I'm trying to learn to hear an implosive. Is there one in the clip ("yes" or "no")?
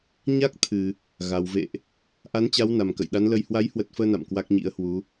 yes